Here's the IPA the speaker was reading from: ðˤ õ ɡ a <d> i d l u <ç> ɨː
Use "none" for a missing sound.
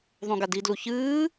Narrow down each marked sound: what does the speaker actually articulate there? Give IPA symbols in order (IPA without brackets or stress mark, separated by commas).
d, ç